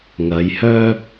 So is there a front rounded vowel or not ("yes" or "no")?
yes